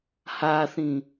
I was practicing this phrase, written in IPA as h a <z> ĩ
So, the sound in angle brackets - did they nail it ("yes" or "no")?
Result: no